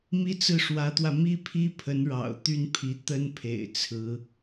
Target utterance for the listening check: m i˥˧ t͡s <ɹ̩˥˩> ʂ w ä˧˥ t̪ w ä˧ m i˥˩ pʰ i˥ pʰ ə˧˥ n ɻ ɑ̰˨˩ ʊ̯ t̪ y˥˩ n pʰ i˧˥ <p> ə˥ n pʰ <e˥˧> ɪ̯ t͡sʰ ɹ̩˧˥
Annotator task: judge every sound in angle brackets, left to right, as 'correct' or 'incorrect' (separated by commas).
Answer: correct, incorrect, incorrect